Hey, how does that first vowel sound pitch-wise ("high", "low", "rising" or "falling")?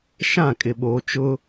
falling